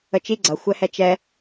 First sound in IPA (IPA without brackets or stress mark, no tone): ə